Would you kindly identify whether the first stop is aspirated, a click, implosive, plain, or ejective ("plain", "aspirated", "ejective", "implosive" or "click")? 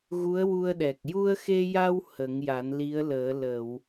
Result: implosive